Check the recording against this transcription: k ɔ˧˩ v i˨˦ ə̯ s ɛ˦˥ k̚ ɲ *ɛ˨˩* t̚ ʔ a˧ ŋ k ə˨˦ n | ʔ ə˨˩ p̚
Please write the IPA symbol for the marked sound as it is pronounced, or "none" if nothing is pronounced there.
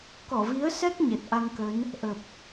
ɛ˨˩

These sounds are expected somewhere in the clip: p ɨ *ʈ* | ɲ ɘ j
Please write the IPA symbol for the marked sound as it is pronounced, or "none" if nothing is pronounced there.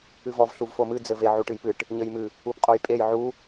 ʈ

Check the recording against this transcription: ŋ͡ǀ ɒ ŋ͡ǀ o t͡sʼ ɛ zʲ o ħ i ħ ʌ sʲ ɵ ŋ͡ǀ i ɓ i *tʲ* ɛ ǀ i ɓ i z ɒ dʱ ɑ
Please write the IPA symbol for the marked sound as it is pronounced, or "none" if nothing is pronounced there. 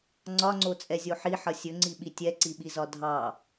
tʲ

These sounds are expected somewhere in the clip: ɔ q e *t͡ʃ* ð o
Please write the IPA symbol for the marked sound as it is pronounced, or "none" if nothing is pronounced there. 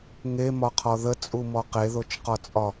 none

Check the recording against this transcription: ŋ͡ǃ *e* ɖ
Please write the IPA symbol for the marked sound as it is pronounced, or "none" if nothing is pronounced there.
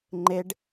e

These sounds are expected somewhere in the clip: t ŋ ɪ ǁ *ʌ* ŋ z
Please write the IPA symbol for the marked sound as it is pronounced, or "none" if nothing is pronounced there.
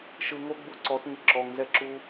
ɔ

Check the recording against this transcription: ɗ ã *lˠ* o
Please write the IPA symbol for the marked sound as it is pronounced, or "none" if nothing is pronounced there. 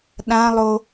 lˠ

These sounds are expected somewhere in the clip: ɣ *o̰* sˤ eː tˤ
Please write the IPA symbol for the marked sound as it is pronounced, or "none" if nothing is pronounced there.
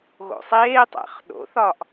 o̰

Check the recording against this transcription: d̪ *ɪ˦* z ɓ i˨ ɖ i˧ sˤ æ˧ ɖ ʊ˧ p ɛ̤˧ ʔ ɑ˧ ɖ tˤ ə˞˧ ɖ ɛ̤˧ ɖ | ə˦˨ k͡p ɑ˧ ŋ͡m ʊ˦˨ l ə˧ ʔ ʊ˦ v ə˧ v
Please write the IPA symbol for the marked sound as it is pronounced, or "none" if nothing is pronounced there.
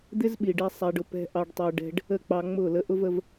ɪ˦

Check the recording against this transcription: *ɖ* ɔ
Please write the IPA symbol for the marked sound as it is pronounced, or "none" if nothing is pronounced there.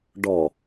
ɖ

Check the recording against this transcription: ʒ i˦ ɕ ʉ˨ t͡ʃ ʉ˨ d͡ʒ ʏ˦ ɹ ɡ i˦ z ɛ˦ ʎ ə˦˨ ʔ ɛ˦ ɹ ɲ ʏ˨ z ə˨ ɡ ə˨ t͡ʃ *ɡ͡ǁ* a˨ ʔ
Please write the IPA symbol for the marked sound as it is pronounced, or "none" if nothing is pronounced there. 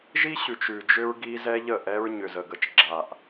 ɡ͡ǁ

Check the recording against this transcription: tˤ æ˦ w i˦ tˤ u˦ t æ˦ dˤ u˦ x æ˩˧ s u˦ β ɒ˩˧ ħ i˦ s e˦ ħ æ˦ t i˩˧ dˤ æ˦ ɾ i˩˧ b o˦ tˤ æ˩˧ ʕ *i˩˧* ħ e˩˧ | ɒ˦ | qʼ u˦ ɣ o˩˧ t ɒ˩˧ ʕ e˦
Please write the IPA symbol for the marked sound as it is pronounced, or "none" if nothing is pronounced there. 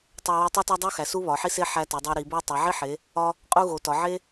i˦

